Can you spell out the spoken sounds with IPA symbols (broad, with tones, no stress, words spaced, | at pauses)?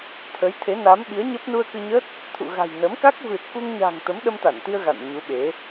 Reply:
t̪ʰə˨˦j t̪ʰe˨˦na˨˦mɓi˨˦ə̯ɲə˦˥p̚ nu˧ə̯kɨ˧ɲə˦˥t̚ | t̪ʰṵ˧˨ɣa̤˨˩j nə˨˦mka˦˥k̚ vɨ˨˩t̚ku˧ŋɲa̤˨˩ŋ t̪ə˨˦mɗə˧mt̪a˧˩nt̪i˧ə̯ ɣa̰˧˨nɲu˨˦ɓe˨˦